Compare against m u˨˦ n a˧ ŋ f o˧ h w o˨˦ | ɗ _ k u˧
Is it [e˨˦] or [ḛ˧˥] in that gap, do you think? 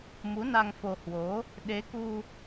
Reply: e˨˦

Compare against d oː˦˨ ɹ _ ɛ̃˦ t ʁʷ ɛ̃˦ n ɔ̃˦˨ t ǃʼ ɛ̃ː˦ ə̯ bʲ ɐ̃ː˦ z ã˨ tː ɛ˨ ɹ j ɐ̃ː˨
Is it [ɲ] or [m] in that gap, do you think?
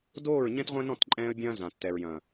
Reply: ɲ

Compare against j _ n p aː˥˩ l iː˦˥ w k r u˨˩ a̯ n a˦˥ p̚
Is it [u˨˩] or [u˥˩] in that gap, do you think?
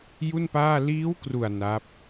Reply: u˥˩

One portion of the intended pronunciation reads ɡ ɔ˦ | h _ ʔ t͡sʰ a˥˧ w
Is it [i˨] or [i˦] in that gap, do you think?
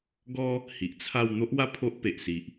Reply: i˨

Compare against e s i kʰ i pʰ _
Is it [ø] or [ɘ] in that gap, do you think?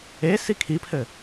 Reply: ɘ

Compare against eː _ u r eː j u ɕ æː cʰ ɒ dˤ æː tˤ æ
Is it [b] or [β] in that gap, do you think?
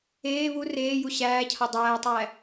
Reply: β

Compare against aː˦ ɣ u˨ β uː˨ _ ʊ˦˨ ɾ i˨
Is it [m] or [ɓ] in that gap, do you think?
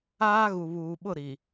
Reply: ɓ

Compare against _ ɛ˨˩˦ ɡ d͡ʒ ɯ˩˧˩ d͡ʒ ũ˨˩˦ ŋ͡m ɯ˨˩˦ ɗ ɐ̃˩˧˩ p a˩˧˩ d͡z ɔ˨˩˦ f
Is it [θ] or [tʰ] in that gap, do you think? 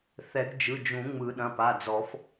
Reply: θ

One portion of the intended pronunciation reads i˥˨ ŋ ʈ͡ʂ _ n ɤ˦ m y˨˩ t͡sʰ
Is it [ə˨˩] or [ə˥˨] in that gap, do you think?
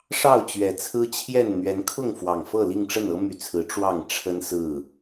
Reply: ə˥˨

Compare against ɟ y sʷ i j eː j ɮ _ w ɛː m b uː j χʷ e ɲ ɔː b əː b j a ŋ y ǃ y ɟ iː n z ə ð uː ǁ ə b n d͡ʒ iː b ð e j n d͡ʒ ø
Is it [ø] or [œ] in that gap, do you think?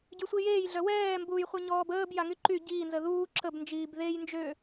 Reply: œ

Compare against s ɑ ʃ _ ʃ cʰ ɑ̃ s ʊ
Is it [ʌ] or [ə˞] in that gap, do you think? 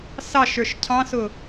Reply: ə˞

